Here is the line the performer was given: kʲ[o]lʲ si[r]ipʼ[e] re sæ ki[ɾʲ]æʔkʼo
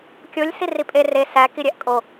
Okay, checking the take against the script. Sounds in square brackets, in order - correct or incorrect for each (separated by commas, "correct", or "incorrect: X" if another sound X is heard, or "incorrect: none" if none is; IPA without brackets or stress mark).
correct, correct, correct, correct